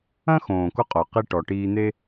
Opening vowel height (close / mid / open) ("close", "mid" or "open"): open